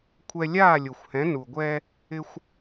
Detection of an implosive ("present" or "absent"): absent